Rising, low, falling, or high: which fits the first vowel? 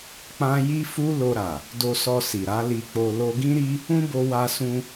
high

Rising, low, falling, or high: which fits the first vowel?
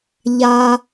high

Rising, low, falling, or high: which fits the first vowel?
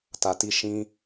low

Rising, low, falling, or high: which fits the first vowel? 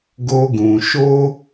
high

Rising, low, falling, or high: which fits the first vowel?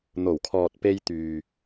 low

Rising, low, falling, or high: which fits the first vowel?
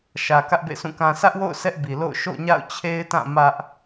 low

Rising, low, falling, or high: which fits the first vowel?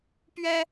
high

